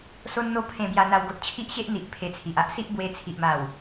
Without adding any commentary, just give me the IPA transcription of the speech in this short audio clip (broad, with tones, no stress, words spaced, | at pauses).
so˦nn̪o˥˧ pʰẽ˧bja˧n̪a˧wɡo˨t̚ t͡ɕʰi˦ʔɕe˦ʔ n̪i˨ʔ pʰe˧t͡sʰi˨ʔ a˦ʔsi˦ʔbwe˧ t͡sʰi˨ʔma˨˩w